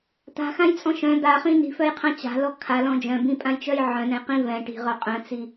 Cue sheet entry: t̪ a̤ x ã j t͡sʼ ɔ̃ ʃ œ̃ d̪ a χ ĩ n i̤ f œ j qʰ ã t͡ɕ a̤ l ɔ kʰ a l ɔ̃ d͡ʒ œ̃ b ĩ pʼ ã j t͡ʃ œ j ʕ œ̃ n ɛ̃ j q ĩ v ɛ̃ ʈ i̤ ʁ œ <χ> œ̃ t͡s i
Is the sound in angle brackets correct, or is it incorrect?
incorrect: qʼ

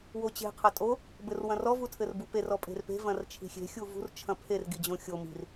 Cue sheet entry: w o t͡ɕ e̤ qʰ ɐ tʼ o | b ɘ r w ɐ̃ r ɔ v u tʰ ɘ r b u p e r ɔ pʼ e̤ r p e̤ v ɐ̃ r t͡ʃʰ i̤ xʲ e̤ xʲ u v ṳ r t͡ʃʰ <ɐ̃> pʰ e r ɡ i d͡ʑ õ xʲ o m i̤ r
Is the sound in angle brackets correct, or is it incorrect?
correct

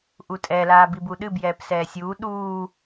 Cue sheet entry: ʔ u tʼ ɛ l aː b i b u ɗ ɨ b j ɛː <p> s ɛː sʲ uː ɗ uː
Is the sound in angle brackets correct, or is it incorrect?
correct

